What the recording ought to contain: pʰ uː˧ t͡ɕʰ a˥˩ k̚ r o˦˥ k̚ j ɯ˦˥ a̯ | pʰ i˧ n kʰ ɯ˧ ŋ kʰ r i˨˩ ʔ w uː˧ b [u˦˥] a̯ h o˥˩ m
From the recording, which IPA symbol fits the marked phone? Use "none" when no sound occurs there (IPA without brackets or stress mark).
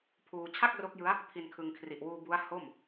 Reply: u˦˥